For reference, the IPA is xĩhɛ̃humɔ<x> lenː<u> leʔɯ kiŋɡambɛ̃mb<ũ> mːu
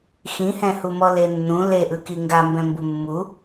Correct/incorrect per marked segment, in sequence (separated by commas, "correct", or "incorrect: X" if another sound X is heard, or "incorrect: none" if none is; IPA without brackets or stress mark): incorrect: none, incorrect: ũ, incorrect: u